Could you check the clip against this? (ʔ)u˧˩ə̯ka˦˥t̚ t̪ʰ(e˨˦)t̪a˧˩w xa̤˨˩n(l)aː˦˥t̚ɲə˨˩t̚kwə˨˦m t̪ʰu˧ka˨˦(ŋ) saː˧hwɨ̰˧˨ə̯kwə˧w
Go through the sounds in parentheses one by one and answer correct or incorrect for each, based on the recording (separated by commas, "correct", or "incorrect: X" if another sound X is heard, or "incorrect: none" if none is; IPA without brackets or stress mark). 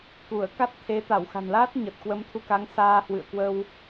incorrect: k, correct, correct, correct